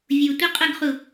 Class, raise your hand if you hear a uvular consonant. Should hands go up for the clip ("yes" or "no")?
yes